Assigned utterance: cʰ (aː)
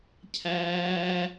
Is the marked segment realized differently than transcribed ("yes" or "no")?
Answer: yes